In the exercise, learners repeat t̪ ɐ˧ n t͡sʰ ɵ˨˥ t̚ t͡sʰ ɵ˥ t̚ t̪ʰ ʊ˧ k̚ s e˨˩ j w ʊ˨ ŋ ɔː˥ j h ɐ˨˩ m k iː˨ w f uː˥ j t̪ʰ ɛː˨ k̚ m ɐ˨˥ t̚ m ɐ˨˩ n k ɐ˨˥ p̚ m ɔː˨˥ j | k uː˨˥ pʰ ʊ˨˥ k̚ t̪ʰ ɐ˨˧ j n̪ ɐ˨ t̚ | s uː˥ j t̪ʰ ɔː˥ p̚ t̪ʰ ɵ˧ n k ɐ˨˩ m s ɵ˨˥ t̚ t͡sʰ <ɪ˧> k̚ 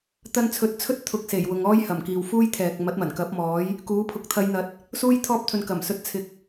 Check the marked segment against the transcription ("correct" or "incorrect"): correct